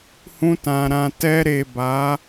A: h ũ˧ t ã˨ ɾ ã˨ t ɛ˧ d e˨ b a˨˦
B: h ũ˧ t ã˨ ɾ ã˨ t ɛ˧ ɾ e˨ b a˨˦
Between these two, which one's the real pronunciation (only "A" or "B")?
B